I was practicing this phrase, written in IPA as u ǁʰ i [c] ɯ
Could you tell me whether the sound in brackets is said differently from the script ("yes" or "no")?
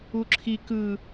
yes